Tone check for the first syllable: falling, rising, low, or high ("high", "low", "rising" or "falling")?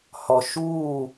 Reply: low